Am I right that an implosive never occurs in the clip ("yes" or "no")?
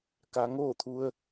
yes